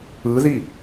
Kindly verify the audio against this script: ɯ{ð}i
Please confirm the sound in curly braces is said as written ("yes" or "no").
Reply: yes